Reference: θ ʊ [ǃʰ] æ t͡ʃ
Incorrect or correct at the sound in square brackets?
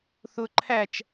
correct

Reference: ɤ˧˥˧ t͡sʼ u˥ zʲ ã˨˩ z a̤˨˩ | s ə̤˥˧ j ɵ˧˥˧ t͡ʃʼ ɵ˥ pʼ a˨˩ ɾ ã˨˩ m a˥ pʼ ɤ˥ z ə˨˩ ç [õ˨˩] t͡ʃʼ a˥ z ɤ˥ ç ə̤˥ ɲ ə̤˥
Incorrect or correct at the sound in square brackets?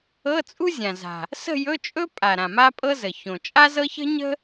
correct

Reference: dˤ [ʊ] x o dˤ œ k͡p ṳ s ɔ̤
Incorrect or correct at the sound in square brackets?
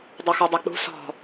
correct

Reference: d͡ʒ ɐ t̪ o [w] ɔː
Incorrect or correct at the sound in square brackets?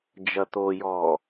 incorrect: j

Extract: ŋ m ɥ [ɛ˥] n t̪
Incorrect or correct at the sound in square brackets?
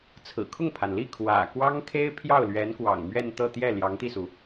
incorrect: ɛ˥˧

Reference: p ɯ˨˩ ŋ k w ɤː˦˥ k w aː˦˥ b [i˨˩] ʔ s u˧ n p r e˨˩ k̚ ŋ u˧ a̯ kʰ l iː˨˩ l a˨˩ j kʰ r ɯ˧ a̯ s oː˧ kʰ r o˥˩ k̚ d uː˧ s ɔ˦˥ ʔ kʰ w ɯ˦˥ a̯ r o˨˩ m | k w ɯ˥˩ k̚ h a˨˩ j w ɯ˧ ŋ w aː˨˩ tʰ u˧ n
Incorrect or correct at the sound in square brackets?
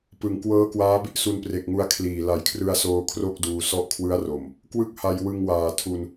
incorrect: i˥˩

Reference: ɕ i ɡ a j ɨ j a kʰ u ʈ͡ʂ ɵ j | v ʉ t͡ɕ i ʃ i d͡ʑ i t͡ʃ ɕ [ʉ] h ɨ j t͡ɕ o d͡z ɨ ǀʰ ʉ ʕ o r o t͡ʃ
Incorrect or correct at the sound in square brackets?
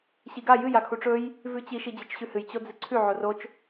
correct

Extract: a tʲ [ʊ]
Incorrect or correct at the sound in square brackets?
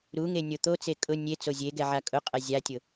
correct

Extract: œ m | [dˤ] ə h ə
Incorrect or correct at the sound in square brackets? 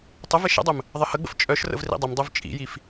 incorrect: ðˤ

